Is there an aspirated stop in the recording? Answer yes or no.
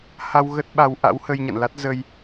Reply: no